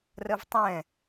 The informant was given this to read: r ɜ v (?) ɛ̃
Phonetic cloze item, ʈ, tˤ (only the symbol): tˤ